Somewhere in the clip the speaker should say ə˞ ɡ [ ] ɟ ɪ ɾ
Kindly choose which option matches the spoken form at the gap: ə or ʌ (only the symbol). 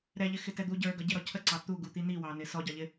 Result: ʌ